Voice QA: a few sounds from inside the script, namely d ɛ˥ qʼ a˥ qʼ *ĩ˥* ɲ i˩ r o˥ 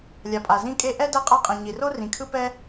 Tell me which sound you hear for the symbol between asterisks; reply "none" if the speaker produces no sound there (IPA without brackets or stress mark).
ĩ˩